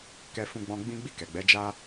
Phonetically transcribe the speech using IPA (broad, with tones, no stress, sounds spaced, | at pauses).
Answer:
k ɛ˧ f ũ˧ ɡ͡b ɔ̃˧ ɡ͡b ĩ˦ ɡ͡b i˦˨ k ɛ˨ ɡ͡b ɛ˨˦ d͡ʒ a˦